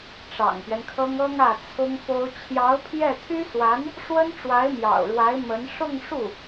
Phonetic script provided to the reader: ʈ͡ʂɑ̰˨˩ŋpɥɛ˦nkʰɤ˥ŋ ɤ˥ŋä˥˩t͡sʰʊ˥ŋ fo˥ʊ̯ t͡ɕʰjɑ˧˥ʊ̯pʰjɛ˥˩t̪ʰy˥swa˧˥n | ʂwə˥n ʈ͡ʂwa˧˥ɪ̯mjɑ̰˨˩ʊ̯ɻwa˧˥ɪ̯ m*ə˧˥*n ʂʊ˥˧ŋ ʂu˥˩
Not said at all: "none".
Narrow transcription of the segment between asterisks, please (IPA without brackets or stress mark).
ə˧˥